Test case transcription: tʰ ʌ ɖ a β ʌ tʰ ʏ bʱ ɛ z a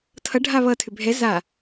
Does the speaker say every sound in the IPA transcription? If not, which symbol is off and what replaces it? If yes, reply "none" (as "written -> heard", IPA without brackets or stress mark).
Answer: ɖ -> ɖʱ